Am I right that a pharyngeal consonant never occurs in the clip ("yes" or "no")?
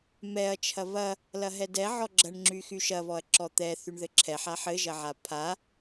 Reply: no